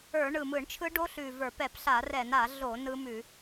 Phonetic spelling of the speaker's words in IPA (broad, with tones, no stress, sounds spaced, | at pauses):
ə˞˧˩˧ ɳ ɯ˨˩ m ɯ˧˩˧ ɳ t͡ʃʰ ɯ˦˥ ɖ o˦˥ ɬ ʉ˨˩ v ə˞˧˩˧ p ɛ˧˩˧ p ɬ a˧˩˧ r ɛ˧˩˧ n a˧˩˧ ɮ o˧˩˧ n ɯ˦˥ m ʉ˧˩˧